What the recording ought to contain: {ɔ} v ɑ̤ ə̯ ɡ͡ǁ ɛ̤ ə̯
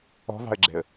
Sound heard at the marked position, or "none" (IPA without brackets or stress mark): ɔ̤